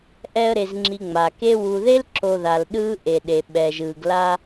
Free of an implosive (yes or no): no